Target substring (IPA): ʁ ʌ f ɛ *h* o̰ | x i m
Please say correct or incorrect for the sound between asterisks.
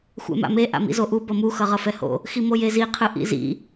correct